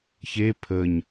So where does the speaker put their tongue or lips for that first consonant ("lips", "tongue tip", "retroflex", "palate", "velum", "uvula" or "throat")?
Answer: palate